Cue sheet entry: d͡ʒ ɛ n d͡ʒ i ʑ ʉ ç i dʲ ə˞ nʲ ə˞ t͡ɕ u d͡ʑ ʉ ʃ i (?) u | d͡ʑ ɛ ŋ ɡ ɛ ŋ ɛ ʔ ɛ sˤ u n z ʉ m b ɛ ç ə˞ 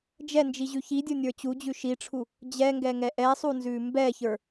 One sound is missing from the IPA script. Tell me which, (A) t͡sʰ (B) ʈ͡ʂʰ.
B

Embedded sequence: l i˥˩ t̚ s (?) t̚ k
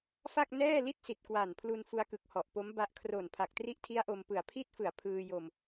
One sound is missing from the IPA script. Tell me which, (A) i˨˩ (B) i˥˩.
A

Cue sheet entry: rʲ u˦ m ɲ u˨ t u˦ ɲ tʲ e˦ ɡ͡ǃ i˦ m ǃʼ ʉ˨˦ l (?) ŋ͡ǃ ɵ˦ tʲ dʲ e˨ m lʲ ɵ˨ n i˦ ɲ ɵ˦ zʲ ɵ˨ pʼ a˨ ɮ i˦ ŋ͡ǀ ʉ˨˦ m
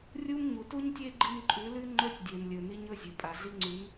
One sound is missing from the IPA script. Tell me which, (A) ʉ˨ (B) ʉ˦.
B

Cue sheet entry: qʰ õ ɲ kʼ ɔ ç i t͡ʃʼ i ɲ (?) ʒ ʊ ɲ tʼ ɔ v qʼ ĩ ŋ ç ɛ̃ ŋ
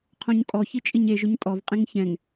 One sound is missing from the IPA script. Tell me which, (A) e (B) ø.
A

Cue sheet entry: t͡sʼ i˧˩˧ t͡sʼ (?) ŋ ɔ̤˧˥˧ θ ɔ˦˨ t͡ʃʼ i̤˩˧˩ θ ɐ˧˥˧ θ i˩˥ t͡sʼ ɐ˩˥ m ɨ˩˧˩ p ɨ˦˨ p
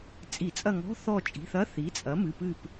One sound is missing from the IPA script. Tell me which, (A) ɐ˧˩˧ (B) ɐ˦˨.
B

